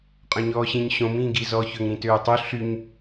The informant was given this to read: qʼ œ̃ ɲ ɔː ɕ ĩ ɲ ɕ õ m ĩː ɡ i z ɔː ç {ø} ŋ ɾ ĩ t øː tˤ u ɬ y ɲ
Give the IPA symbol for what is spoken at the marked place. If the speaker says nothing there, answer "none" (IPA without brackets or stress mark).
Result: ø